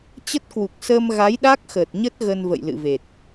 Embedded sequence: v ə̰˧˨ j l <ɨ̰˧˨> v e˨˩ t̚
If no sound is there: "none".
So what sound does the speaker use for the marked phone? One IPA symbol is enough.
ɨ̰˧˨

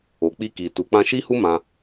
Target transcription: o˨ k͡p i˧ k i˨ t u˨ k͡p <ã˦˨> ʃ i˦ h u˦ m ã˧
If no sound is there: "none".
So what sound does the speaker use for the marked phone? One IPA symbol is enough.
ã˧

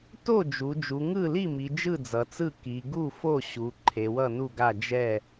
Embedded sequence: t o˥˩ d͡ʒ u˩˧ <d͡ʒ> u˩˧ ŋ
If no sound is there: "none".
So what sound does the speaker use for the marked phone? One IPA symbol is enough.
d͡ʒ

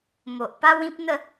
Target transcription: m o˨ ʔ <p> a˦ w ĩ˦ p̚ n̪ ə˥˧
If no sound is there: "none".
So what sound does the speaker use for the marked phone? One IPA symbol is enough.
p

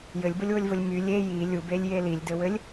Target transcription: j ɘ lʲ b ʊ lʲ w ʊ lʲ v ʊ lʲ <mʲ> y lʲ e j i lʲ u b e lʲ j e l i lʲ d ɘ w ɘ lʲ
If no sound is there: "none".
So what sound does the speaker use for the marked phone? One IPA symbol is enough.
m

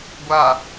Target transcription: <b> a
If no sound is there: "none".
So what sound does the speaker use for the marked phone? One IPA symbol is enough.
ɡʷ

